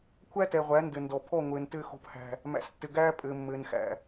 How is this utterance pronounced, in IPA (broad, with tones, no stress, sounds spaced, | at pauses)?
kʷʰ æ˦ t ɛ˨ ʁʷ æ˨˦ n d ɘ˨ n d ɔ˨ pʰ ɔ˦˨ ŋʷ ɘː˨ n t ɘː˦ x o̤˦˨ p h æ̤˦ | m æ̰˨ s tː ɘ˨ ɡ æː˦ pʼ ɘː˨ mː ɘː˨ n x æ̰˨